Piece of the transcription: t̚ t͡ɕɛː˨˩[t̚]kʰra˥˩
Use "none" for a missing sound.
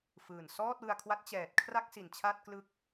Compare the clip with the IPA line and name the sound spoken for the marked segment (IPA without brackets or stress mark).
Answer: t̚